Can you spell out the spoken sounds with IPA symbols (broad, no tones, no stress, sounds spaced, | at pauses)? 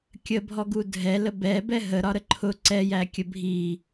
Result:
kʲ ə bʱ ɔ ɡ u dʱ ɛ l ə b ɛ b ɛ ɦ ə ɾ ɒ ɾ ə ǃʰ ʊ ǀ ɛ j æ kʲ ə bʱ i